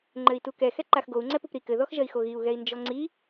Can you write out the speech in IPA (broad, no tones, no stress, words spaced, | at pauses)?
ŋ͡ǃɘi̯tukɛ xɛǃaxɡou̯ ŋ͡ǀɛpupɾi kɘ ðɔxʒɐi̯xoɣiu̯ ɣɛi̯nd͡ʒɔŋ͡ǀi